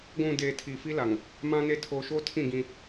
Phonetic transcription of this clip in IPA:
ɡʷ ũ˨ d eː˨ tʰ i˨ f i˦ l a˨ ŋ | m ã˦ n e˦ tʰ oː˨ ʃ oː˦ tʰ ĩ˦˨ ɡ ĩ˦

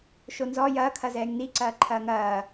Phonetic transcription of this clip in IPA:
ʃ o n z ɔ j ɐː kʰ ɐ z ɛː ŋ n i ǀ ɐː ǃʰ ɐː ŋ ɐː

